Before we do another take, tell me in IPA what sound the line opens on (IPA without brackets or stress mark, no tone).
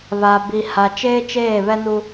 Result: β